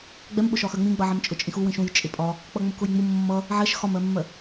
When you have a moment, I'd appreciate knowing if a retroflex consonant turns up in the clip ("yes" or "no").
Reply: no